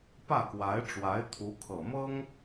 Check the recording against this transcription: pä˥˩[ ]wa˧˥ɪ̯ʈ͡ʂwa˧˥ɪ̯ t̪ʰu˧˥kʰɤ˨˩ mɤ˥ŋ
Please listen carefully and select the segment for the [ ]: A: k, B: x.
A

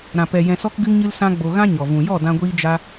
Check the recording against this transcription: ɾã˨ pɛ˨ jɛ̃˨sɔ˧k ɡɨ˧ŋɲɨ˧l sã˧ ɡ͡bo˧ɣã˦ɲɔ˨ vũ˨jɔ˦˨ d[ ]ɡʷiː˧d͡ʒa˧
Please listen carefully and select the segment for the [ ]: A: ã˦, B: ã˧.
B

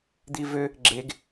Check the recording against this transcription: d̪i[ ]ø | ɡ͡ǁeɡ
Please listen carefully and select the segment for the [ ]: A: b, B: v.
B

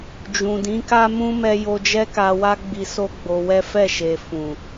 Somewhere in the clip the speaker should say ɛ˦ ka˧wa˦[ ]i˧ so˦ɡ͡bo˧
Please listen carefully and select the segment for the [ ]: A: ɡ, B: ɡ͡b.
B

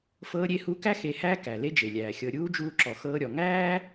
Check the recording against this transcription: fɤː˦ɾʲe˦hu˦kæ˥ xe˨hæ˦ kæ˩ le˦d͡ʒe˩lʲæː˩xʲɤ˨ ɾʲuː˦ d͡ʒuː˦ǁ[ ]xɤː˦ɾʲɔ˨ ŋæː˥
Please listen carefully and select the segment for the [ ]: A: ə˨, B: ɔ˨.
B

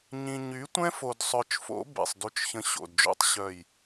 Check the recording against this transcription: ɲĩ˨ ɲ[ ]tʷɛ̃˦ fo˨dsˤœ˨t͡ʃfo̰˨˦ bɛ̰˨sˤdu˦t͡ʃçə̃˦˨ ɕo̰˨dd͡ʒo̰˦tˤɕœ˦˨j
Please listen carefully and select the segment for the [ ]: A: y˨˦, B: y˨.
A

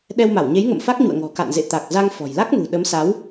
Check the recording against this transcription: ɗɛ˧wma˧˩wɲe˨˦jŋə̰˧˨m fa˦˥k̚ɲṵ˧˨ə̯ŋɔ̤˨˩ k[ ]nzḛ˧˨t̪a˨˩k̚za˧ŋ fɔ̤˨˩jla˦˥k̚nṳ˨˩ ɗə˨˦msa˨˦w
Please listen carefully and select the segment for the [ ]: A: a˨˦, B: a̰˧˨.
B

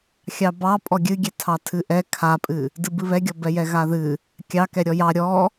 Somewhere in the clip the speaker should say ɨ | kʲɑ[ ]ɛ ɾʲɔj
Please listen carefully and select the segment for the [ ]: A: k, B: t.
A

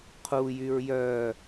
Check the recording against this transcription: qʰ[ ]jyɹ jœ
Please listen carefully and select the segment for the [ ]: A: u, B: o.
A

